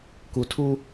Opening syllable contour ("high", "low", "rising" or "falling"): low